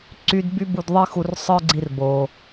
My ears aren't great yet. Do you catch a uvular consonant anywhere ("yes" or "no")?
no